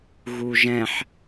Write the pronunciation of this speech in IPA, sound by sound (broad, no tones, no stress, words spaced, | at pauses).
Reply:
ɣuʒɛ̃ħ